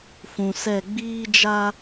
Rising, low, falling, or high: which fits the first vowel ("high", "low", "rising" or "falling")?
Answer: low